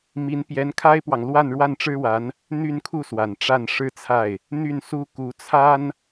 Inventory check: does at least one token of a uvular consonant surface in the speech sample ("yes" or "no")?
no